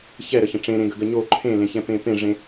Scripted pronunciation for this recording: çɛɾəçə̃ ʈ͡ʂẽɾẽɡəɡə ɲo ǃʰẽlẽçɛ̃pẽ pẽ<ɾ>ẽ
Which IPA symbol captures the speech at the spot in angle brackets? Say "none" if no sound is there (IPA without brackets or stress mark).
ʐ